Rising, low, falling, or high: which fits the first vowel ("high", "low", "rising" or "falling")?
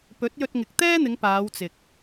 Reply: rising